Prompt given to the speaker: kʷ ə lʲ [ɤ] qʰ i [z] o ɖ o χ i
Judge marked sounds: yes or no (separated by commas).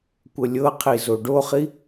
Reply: yes, yes